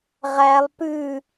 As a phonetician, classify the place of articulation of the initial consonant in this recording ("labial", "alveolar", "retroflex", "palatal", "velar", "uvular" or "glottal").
uvular